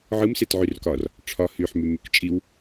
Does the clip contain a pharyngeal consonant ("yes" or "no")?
yes